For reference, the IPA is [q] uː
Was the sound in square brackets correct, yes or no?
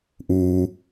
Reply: no